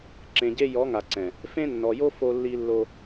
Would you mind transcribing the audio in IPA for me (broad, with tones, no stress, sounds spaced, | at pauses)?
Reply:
ǁ ẽ˨ ɟ e˦ j ɔ˨˦ ŋ a˨ ǀ ɛ̃˨ | f ẽ˦ nː ɔ˨ j o˦ f o˦ lː i˦ lː o˦